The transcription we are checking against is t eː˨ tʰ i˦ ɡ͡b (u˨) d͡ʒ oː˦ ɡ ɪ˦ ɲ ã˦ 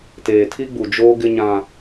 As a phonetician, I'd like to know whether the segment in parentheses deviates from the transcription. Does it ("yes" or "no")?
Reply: no